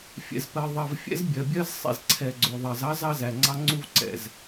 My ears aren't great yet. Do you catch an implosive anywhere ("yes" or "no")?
no